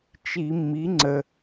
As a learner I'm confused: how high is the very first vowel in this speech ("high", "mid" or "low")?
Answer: high